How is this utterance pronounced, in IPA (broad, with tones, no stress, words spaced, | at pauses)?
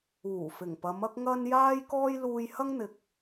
uː˨˩fɪ˨˩ŋpɐ˨˧m ɐ˥k̚ŋɐ˥n jaː˥jkɔː˥j luː˧jhɐ˥ŋn̪ɪ˨k̚